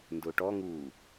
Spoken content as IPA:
n d ʊː ʈ ɔ ŋ uː

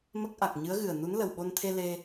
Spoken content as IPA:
m ə˦˥ k̚ ʔ a˨˩ k̚ ɲ ɨ˧˥ ə̯ ɣ ɨ˨˩ ə̯ n u˧˥ n l ə˨˩ w ɓ o˧ n t̪ʰ e˧ l e˧

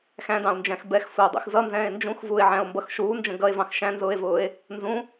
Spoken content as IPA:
x æ̃ d ɑ̃ o̯ n d͡ʒ æ̃ x b ɛ x sʷ ɑ o̯ dˤ ṵ x z ʌ n z ɛ̃ː e̯ n d͡ʒ ũ x v uː e̯ ʕ æ̃ o̯ m b ʌ x ʃ uː n d͡ʒ ə̃ ɡ ʌ e̯ v ɑ̃ x ʃ æ̃ n z ʊː e̯ v ʊː e̯ | n z ũ

